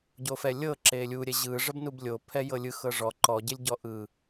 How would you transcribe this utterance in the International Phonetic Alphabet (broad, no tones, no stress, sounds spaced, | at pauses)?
ɟ o f ɛ lʲ ɤ ǁ e lʲ u ɾʲ ɛ ʑ ɯ ʐ ə b n u b lʲ o pʰ ɛ j ɤ lʲ ɯ x ɤ ʐ ɔ ǃ ɔ ɟ e lʲ ɟ ɔ ʔ ɯ